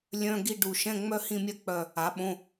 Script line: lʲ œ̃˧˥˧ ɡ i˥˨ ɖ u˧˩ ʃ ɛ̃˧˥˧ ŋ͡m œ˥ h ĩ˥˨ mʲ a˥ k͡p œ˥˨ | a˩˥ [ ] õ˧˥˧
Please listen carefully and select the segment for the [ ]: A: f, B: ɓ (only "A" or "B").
B